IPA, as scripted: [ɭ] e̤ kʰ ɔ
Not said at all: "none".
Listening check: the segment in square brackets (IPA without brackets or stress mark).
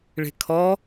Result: ɭ